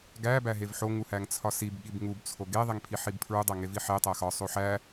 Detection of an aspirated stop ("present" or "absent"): present